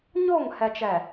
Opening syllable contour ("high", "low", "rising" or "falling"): falling